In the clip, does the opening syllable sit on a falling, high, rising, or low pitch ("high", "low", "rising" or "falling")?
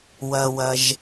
low